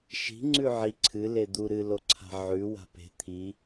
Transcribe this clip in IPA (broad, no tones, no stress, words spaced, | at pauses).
ʃi̤ ŋ͡ǀʉʕi ǀʰɨ led̪u ɾɨloǀʰa̤ ʕʉ wa̤pe̤ t̪ʰi